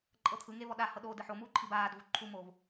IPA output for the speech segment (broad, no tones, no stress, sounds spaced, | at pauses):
ǃʼ ɤ t̪ʰ ɯ ŋ e v ɔ ɗ a h ɤ ɗ oː d ɯ ħ o m uː ǃʰ i b aː d v u ǃʰ u m oː v